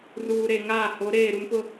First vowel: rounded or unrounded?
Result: rounded